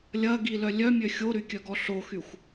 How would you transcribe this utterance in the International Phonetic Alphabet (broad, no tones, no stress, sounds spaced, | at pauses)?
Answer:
lʲ ɐ ɡ i l œ lʲ œ mʲ ø xʲ o ɾ y kʲ œ ɡ ɔ ɬ o x y xʷ